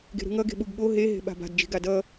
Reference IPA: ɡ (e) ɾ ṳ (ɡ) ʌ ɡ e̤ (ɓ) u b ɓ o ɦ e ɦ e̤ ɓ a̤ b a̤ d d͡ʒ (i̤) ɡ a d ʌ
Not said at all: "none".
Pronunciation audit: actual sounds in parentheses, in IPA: e̤, ŋ, ɓ, i̤

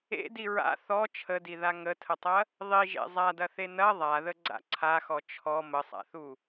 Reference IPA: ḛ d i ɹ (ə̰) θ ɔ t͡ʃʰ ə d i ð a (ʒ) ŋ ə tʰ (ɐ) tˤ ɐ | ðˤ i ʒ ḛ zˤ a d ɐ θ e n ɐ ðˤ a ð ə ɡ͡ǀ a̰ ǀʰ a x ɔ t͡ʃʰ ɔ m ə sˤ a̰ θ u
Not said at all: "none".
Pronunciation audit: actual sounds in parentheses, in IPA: a̰, none, ə

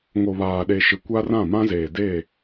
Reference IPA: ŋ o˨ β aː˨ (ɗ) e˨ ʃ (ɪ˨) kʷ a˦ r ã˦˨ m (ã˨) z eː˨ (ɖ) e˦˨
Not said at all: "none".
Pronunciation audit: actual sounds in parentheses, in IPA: ɗ, ɪ˨, ã˦, d

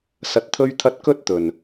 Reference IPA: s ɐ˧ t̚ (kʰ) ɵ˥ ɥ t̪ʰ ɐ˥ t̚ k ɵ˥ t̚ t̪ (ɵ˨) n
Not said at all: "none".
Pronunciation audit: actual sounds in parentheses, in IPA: t̪ʰ, ɵ˨

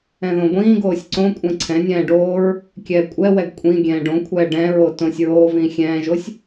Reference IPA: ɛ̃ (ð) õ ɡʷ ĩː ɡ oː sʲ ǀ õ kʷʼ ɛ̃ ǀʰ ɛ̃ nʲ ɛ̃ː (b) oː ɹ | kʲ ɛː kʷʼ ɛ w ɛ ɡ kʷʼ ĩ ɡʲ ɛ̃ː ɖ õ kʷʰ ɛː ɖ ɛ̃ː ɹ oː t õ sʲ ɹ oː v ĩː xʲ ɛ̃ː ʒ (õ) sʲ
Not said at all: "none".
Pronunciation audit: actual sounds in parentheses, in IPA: ð, ɖ, o

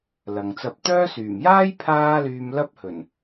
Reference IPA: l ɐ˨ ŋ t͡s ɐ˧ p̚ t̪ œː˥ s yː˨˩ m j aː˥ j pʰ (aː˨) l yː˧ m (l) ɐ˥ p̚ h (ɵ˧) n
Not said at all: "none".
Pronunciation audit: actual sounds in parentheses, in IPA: aː˥, l, ɵ˨˩

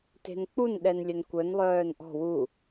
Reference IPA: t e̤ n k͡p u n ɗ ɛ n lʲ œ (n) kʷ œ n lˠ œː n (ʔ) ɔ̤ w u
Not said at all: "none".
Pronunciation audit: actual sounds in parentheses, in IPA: n, ʔ

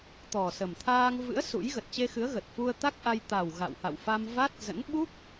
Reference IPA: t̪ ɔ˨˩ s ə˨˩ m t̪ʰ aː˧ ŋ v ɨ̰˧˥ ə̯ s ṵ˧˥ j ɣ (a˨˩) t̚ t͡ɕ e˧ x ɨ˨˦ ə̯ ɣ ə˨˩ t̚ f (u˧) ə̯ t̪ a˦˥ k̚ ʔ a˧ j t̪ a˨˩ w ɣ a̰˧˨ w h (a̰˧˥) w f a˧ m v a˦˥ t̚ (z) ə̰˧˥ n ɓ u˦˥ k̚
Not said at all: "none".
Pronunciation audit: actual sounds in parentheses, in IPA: ə˨˩, u˧, a̰˧˨, z

